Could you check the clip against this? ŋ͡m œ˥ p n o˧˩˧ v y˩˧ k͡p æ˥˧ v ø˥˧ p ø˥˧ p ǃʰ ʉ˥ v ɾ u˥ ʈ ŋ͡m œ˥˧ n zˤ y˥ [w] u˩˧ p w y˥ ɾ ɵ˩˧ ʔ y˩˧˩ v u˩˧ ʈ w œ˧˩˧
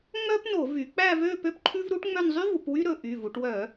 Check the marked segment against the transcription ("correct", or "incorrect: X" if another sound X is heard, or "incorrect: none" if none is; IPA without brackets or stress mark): incorrect: v